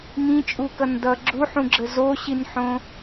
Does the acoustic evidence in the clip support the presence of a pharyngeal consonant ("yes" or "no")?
yes